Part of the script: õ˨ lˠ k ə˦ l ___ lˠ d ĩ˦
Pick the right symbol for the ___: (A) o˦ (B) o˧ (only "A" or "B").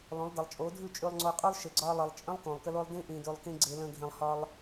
A